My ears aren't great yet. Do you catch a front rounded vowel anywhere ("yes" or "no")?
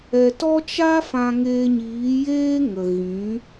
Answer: no